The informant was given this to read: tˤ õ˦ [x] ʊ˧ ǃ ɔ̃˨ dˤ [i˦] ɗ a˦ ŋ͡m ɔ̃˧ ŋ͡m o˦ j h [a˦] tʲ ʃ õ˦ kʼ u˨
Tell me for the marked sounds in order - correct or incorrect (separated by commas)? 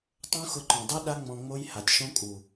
correct, correct, incorrect